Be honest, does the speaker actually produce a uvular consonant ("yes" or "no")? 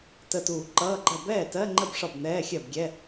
no